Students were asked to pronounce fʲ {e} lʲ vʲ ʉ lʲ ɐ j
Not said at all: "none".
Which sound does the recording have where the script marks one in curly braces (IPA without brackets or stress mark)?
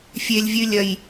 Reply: e